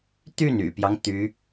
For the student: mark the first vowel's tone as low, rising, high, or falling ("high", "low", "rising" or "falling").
falling